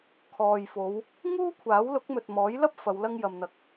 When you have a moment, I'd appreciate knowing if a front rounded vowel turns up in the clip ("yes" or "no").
no